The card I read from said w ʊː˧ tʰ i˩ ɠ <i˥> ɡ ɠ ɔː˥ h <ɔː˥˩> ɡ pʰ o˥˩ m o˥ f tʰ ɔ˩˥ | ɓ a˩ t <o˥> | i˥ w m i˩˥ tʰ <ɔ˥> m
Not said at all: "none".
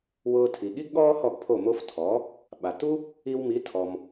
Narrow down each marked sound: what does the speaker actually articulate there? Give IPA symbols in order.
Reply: i˥, ɔ˥˩, u˥, ɔ˩

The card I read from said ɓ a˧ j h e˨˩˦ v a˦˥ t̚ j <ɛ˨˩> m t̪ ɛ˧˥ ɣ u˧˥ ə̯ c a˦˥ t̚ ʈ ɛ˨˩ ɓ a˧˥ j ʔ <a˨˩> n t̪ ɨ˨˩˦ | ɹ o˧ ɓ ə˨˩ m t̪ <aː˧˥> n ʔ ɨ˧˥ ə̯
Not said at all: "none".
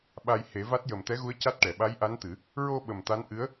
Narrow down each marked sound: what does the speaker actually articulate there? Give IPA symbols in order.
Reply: ə˨˩, a˧˥, a˧˥

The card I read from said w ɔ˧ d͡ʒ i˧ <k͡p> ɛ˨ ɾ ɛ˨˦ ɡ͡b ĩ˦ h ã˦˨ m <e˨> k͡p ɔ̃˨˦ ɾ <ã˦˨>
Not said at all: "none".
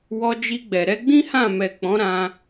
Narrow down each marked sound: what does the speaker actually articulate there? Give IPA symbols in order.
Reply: ɡ͡b, ɛ˨, ã˧

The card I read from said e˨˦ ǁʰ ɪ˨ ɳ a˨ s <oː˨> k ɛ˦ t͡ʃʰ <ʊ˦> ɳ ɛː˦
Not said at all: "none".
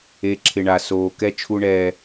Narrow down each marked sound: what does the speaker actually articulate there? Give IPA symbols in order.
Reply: oː˨, u˦

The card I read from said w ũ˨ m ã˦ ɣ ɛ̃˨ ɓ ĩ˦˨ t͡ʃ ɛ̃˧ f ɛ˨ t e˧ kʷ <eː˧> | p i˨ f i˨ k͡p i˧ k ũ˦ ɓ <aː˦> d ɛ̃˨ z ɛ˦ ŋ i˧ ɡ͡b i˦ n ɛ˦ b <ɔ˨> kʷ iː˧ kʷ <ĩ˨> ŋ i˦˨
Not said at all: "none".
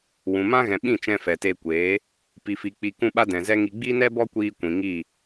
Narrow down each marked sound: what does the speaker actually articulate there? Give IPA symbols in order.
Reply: eː˨˦, a˦, ɔ˦, ĩ˨

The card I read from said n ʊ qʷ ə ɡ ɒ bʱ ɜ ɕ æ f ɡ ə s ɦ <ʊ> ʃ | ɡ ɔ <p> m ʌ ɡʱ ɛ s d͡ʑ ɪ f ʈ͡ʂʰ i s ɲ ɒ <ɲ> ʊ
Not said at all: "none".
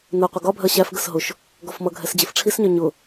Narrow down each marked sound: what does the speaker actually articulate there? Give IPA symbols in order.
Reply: ʊ, f, ɲ

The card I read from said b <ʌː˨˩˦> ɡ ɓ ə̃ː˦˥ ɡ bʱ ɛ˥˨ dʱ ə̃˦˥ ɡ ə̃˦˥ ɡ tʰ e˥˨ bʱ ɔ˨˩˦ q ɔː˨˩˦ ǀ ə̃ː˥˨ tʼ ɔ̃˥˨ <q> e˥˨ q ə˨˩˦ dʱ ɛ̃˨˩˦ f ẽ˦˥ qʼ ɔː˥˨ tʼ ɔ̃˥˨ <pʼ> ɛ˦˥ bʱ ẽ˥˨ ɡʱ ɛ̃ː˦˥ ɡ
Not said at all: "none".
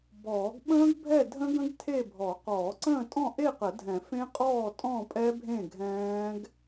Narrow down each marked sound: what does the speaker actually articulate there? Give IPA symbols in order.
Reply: ɔː˨˩˦, ʔ, pʼ

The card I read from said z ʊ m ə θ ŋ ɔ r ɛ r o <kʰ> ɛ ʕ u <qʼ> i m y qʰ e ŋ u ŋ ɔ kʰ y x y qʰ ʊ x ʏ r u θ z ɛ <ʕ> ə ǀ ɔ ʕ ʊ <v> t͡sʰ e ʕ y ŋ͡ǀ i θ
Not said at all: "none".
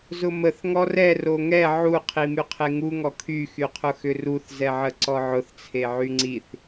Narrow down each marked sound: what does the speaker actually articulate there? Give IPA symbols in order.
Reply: ŋ, qʰ, ʕ, θ

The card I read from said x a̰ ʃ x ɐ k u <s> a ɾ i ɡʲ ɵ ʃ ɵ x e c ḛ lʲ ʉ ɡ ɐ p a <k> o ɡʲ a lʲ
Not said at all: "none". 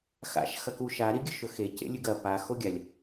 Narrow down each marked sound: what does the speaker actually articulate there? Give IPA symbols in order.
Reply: ʃ, x

